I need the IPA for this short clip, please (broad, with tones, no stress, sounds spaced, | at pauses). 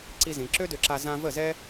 ǀ i˧ z ĩ˨ ǁ ø˦ d ø˧ ǁ a˧ z ã˧ v ə˦˨ z ɛ˦